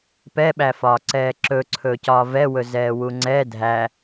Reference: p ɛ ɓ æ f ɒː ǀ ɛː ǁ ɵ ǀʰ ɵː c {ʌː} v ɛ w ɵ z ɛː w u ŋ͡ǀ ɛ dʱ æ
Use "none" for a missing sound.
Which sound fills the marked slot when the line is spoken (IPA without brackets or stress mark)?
ɒː